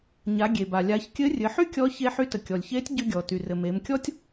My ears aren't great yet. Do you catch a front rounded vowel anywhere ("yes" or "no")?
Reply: yes